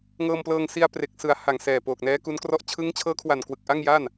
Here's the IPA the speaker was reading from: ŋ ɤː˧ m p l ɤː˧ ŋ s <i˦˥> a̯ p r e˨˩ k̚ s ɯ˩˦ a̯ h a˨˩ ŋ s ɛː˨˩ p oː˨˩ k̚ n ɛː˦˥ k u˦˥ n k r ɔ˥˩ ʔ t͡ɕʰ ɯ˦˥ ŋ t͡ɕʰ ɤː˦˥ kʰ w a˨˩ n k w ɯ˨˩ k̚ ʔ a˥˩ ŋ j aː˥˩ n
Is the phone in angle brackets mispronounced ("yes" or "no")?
yes